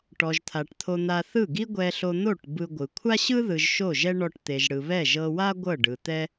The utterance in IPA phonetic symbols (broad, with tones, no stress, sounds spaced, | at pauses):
ʈ ɔ˨ ʒ t̪ʰ a˨ ʈ t̪ʰ o˧ n̪ a˧ θ ɯ˦˨ ɡ i˦ ɡʷ ɛ˧ ɬ o˧ n̪ o˦˨ ʈ b ɯ˧ ɡʷ ɯ˨ kʷʰ a˦ ɕ ɯ˦ ð ɯ˨ ʒ ʃ o˦˨ ʒ ɛ˦ ɳ ɔ˧ ʈ t̪ e˨ ʒ ɽ ɯ˨ β ɛ˦˨ ʒ ɤ˧ w a˦ ɡʷ ɤ˦˨ ɖ ɯ˨ t̪ ɛ˦